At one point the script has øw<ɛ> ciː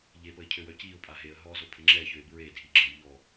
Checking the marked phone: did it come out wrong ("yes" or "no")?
yes